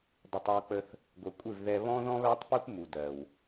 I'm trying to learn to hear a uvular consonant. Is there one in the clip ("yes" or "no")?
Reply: no